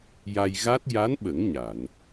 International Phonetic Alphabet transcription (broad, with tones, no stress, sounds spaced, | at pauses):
j a˧ j ɣ a˦˥ t̚ j a˧˥ n ɓ ə˨˩˦ ŋ ɲ a˨˩˨ n